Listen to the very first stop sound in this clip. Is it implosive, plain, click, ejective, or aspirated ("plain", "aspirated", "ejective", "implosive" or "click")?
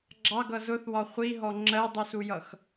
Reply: click